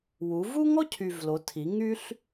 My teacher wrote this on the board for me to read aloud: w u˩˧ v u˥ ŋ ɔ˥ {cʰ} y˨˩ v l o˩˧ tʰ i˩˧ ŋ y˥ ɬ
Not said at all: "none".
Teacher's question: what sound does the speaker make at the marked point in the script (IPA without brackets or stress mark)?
cʰ